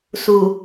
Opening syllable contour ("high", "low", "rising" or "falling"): low